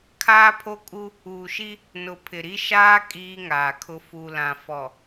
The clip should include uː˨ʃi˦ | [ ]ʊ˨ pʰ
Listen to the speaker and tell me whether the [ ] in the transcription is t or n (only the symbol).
n